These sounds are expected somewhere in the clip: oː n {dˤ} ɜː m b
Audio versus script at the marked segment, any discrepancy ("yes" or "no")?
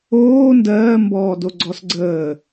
yes